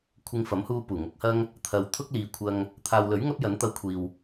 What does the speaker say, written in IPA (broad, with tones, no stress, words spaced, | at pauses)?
kʷʰɪ˧ŋfɐ˨˥mhuː˧ puː˨˩ŋʊ˨˥k̚hɐ˥ŋ | t̪ʰɐ˨w t̪ʰʊ˥k̚liː˨kʷʰɐ˧ŋ | t̪ʰaː˨wlɵ˨˥ɥ ŋɐ˥p̚jɐ˨˥nt̪ɐ˧wkʷʰiː˨w